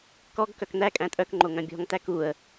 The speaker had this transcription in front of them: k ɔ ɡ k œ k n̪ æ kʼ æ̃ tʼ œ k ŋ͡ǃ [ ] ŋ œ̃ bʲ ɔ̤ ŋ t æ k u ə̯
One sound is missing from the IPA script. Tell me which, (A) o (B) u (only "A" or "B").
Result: A